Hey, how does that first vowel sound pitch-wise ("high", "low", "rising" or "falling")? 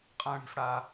high